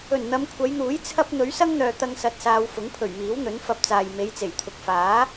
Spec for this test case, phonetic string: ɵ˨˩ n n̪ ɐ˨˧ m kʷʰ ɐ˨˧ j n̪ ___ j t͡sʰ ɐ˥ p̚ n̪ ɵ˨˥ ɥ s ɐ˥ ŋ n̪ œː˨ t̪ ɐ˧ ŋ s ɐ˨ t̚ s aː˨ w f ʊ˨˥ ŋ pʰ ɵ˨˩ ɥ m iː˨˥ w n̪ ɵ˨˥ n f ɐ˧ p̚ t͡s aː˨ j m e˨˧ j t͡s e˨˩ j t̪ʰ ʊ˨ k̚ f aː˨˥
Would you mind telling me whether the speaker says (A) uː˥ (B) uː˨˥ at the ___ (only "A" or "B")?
B